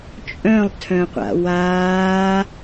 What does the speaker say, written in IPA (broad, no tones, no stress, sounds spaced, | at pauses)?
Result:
t͡ʃʼ œ̃ lˠ tʰ œ̃ qʷ a̰ w aː